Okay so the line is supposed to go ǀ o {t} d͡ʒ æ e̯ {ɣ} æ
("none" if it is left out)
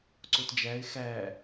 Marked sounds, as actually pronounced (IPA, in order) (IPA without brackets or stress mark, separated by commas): t, x